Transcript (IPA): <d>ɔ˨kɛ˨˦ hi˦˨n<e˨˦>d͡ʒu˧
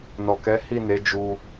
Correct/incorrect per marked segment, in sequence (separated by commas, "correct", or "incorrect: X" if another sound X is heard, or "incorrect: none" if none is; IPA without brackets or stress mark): incorrect: n, correct